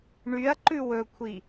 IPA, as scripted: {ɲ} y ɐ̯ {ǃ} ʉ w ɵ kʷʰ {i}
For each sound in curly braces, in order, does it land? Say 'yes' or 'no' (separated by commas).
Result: no, yes, yes